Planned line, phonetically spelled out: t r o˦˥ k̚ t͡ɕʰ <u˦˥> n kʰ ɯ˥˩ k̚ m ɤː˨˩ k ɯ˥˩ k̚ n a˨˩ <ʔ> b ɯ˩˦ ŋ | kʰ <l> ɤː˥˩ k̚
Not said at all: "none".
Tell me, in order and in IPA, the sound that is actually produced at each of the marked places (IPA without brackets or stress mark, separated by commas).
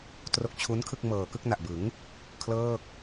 u˦˥, ʔ, l